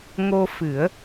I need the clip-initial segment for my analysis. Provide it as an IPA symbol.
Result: ŋ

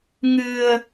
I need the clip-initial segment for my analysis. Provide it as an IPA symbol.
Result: ŋ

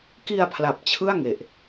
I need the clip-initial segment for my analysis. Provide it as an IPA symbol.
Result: k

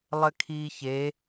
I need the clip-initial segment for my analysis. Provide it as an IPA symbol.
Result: lˠ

